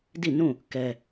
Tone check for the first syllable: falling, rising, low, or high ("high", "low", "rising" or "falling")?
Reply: falling